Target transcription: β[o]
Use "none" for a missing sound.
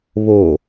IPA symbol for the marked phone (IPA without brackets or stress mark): o